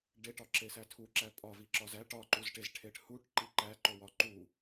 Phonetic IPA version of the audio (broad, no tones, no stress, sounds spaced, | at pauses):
ɖ e ʈ ɒ ǁ e s æ tʰ u ǁ æ pʼ ɒ v i ǁ ɒ z æ ʈ ɒ ǃ u z ʈ e z ʈʰ e ʈ h u ʈ ǃ i ǃ æ ǃ o w ɒ ǃ u